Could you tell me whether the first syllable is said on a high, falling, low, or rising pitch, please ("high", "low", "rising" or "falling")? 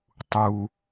high